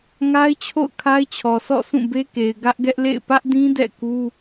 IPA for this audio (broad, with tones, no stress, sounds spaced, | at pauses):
ŋ a˦ ɪ̯ t͡ɕʰ o̰˦˨ ʊ̯ kʰ a˦ ɪ̯ t͡ɕʰ ɔ˨ s ɔ̰˦˨ s ũ˦˨ b e˦ k e˨ ɪ̯ ɡ ä˦ ʔ ɡ ɛ˦ ʔ l ḛ˦˨ ɪ̯ p ä˦ ʔ d ĩ˦ d ɛ̰˦˨ k u˦